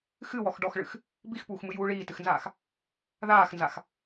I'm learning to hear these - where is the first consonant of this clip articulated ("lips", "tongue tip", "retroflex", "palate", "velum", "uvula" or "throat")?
velum